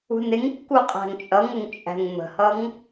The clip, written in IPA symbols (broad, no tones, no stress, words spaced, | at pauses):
ṳnɪŋkːu qʼæ̤ŋt͡ʃʼʌŋəŋ t͡ʃʼæ̤ŋmə̤hʌŋ